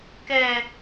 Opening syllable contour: high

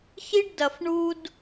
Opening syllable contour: high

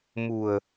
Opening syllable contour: low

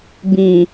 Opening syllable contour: low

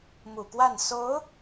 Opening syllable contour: low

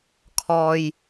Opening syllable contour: low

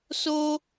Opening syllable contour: high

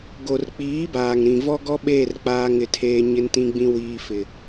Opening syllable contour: low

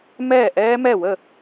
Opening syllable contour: falling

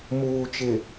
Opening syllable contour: low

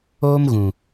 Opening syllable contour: high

